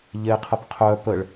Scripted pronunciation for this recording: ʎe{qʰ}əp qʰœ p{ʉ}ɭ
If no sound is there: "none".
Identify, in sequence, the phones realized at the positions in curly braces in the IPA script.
qʰ, ə

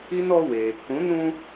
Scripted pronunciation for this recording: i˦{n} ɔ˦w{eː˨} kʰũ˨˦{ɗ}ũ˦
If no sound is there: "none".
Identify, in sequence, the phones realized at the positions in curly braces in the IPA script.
n, eː˨, n

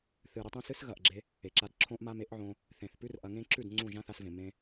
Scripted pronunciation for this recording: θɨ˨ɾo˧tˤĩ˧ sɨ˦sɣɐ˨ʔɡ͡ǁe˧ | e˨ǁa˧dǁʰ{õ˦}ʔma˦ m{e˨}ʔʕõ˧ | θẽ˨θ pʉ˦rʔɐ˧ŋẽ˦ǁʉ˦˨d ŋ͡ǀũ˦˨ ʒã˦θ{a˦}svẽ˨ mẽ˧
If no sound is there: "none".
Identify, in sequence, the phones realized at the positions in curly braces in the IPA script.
õ˦, e˨˦, a˧

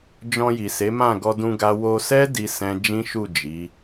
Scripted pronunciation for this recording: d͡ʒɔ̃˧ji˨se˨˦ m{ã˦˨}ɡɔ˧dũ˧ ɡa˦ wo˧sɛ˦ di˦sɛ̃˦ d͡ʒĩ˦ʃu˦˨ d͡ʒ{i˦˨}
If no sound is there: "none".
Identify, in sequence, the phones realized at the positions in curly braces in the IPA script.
ã˦˨, i˨˦

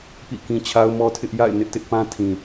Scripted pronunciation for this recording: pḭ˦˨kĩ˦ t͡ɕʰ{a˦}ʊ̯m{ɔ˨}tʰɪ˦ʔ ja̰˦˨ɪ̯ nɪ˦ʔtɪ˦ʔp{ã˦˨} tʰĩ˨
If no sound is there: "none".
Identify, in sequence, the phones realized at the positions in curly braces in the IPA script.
a˦, ɔ˦, ã˦

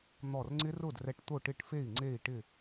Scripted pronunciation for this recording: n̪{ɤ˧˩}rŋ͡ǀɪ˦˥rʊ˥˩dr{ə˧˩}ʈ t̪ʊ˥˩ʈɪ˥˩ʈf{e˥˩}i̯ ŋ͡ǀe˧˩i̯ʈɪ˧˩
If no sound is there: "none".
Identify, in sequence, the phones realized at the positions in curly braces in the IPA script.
ɔ˧˩, ɛ˧˩, e˥˩

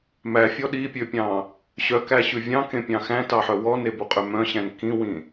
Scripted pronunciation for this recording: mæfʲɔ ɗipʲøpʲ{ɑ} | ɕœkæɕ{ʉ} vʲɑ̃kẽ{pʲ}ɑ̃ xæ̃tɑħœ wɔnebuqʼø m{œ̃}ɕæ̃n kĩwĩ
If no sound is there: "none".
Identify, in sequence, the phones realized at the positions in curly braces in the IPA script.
ɑ̃, ʉ, pʲ, œ̃

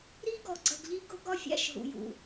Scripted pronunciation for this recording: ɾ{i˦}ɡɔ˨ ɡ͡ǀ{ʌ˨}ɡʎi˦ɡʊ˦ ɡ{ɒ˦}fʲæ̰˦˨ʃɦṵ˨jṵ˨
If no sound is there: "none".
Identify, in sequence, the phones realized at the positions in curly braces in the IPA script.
i˦, ʌ˨, ɒ˦

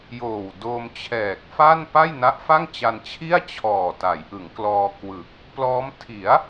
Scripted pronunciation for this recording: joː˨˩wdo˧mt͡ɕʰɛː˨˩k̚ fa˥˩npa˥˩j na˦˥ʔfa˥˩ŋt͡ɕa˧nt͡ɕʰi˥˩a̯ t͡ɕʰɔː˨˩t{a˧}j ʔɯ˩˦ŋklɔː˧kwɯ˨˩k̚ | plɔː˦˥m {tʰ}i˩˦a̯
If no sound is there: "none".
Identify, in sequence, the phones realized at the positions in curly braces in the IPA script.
a˩˦, tʰ

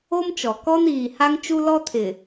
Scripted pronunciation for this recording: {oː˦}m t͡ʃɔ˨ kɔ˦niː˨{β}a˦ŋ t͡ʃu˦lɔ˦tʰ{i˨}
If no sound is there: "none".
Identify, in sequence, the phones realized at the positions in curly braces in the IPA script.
o˦, h, ɪ˨

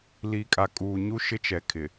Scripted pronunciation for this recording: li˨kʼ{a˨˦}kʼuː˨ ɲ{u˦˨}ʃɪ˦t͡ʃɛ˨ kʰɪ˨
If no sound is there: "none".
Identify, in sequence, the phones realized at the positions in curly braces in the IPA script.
a˨, u˦

